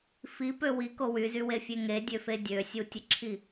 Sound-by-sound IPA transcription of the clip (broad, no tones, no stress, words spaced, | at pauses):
fipø wiko wyzywefʲe ŋedʲøfe dʲøsʲutʲəǁʰi